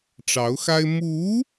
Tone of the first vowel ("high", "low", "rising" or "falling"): rising